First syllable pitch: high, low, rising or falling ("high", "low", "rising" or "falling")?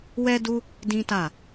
high